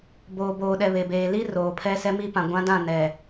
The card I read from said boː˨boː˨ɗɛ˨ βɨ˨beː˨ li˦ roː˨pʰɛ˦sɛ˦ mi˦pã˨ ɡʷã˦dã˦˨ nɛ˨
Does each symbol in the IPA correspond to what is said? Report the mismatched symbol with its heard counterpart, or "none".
ɨ˨ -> e˨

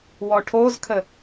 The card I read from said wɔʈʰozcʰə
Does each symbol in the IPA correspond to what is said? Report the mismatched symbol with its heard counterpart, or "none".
cʰ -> kʰ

